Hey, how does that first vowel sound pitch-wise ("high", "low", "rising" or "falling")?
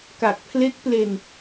low